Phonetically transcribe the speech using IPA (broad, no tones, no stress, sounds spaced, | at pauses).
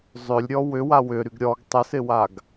zˤ ʏ lʲ ɾʲ ɔ w ʏ w a w ʏ ɾ y ɡ ɾʲ ɔ ɡ tˤ ə s ɪ w a ɡ